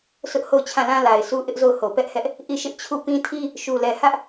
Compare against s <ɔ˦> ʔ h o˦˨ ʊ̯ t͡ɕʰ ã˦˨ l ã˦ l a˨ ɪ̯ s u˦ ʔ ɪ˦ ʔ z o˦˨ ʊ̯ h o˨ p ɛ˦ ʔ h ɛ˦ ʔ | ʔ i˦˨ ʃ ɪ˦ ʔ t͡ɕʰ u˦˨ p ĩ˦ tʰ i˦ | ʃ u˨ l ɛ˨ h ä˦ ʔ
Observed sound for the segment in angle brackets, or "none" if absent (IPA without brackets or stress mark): ʊ˦